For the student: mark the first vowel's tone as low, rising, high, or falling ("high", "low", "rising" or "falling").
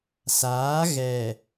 rising